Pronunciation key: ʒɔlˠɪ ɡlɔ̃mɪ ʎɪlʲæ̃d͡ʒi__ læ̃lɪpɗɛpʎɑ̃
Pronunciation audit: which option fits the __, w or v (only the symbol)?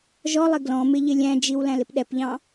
w